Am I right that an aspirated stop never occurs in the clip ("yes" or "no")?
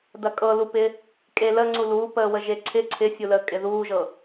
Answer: no